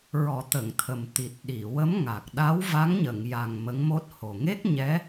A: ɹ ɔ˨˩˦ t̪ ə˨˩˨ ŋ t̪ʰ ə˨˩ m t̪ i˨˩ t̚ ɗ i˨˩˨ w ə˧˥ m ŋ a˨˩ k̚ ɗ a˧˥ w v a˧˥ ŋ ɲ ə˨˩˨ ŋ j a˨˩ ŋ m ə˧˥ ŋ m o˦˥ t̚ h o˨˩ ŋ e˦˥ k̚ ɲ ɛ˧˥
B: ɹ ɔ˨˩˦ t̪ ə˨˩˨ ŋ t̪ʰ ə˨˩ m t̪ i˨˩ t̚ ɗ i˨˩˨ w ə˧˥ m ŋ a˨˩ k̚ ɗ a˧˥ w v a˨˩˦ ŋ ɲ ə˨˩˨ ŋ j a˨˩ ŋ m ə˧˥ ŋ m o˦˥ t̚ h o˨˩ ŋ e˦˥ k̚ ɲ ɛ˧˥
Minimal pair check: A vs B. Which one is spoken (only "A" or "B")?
A